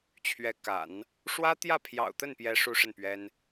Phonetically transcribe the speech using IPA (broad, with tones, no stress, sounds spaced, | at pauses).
t͡ɕʰ ɥ ɛ˧˥ k a̰˨˩˦ n | ʂ w ä˥ t̪ j ä˥˩ pʰ j ɑ̰˨˩ ʊ̯ t̪ ə˥˩ n p j ɛ˧˥ ʂ u˥ ʂ ə˥˩ n p ɥ ɛ˥ n